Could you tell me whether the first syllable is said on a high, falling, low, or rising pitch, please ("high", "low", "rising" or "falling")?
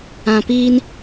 low